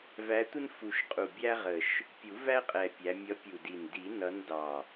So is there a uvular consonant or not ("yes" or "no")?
yes